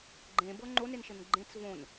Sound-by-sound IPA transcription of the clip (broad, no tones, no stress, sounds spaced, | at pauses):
ɡ͡ǃ ẽ b ɤ ŋ͡ǃ o n e n ʃ ɘ n ɡ͡ǃ ẽ t͡s v õ n